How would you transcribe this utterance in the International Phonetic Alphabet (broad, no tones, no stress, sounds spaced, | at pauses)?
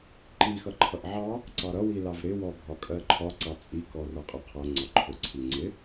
ǃ i x ʌ ǃʰ ʌ ʔ ʕ ɑ | ǀ ɑ ɾ ʌ w i l ɑ v ɾ ɪ w ɔ bʱ ɒ kʼ ɜ ǃʰ ɒ ǀ ɑ t͡sʼ i k ɔ r ʌ qʼ ɜ qʰ ʌ ŋ͡ǀ ɒ ǃʰ ʊ ǀʰ i ŋ͡ǀ ɪ